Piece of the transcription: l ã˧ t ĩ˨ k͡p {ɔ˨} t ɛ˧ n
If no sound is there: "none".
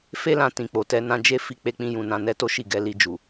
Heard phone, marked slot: o˨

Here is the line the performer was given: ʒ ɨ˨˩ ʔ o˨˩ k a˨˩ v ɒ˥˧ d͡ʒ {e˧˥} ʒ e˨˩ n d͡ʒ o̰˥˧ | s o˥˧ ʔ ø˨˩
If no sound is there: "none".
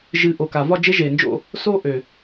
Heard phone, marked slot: e˧˥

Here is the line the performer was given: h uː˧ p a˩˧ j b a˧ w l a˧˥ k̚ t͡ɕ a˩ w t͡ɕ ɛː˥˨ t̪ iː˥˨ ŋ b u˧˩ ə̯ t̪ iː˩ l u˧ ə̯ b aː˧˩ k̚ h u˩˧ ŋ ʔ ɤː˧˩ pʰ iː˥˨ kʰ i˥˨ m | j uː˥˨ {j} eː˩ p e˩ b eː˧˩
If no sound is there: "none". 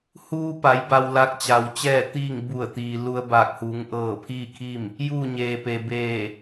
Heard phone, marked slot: ɲ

